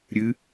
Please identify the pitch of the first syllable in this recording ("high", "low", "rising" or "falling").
rising